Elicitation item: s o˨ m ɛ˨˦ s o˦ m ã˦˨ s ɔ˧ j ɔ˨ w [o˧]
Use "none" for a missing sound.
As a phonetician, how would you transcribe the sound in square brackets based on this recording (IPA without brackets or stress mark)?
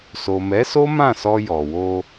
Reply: o˧